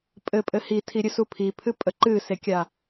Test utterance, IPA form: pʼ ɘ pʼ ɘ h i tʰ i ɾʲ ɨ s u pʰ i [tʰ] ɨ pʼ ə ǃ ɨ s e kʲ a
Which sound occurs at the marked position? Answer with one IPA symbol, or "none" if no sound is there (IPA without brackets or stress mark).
pʰ